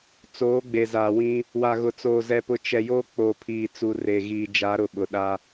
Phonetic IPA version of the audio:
t͡soː˨˦ɡ͡be˨za˨wĩ˦ | wa˨ɣʊ˨t͡soː˨ zɛ˦pʊ˦ t͡ʃɛ˨joː˦ k͡po˨pʰiː˨ t͡su˨re˨ɣiː˨ d͡ʒa˨˦ɾʊ˨ ɓʊ˨ɗa˦

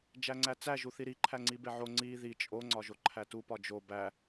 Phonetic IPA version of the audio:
d͡ʒæŋ͡ǀæt͡sæ ʒuθiɾi ǃʰæŋ͡ǀibeʕo ŋ͡ǀi ði t͡ʃʼo ŋ͡ǀɒʒoǃʰætu pɒd͡ʒo bæ

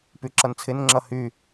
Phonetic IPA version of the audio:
pyǁʌnt͡sʰɪnŋ͡ǁʌ hy

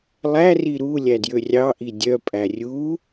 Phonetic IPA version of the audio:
lˠæri ɾu lʲædjørʲɑʔi dʲœpʼæ rʲu

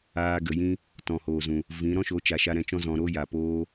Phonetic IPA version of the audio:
aː˧ɡə˨jĩ˦ | tɔ̃˨hoː˨zũ˨ | vĩ˨˦ ɾɔ̃˦ʃo˨˦t͡ʃa˨ ʃa˧ɾɛ̃˨˦t͡ʃɔ̃˦ zɔ̃˨ ɾo˦ja˨ poː˧

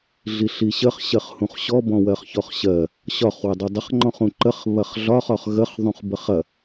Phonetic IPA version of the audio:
ɮiɬiɕəχ ɕɜχhũχɕɔ bɔ̃wɜχçɔχɕɜ | ɕɒχ wədˤɐdˤəχ ŋ͡ǃɔ̃χũǃəχ βɐχɮɒχ ɒχɣəχ ðˤũχbəχɐ

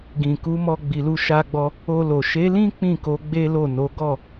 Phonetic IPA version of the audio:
ɡĩ˨ku˨˦mɔ˧ ɡ͡bi˨lu˧ʃa˧ɡ͡bɔ˧ | o˧lo˨ ʃe˨˦lĩ˦ k͡pĩ˦˨ko˨˦ ɡ͡be˦lo˦˨no˨˦ ɡɔ˦˨

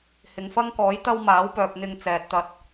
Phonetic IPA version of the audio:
hɪ˨ŋfɐ˥ŋkɔː˨˥j t̪ɐ˥wmaː˨˥wpœː˨p̚ n̪ɪ˧ŋt͡sɛː˨t̚t̪ɐ˧t̚

